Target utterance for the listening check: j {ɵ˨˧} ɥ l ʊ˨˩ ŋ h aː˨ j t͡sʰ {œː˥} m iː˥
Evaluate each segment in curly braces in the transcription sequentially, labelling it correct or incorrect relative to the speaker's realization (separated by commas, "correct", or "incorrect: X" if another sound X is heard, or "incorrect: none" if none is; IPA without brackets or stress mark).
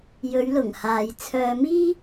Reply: correct, incorrect: œː˧